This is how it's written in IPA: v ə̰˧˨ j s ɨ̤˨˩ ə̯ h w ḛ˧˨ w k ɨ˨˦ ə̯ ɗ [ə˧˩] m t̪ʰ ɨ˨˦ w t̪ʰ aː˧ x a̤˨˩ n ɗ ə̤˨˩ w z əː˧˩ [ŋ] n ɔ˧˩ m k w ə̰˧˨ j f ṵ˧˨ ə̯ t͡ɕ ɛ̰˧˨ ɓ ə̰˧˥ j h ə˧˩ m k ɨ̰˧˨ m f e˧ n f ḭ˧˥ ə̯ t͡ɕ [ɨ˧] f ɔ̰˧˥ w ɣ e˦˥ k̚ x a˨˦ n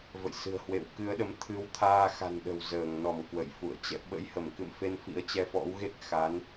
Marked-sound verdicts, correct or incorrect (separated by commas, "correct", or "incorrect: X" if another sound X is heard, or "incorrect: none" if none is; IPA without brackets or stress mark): incorrect: ə˨˦, correct, incorrect: ɛ˧